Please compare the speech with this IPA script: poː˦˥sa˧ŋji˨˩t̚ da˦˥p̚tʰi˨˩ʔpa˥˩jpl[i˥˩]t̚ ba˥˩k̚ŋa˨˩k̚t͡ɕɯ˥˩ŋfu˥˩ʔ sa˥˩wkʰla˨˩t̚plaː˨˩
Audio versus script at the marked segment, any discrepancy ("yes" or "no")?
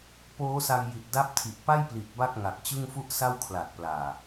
yes